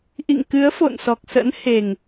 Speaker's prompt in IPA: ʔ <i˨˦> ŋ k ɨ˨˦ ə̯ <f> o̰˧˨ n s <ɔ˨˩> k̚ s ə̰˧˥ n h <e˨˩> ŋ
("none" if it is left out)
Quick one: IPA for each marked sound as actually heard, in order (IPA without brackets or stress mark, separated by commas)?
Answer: ḭ˧˨, f, ɔ˨˩, e˨˩